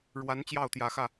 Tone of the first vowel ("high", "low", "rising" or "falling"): rising